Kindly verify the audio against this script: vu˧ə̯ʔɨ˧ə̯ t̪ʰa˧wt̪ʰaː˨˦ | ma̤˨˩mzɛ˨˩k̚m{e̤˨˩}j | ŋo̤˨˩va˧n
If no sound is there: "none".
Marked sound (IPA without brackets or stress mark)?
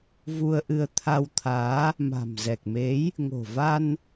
e˨˦